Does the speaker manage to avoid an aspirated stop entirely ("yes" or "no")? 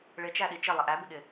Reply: yes